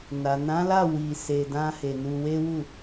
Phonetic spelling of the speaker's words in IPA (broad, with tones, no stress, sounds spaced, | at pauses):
n a˨ n ã˨˦ l a˦˨ w i˧ s e˧ d ã˦ h e˧ n u˧ w e˦ w u˦˨